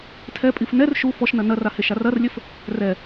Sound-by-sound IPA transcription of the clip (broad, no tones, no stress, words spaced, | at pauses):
tʰɛpʼif nɛr ʃu fɔʃnɐ nɐraheʃar ɐrlʲɘf | rɛ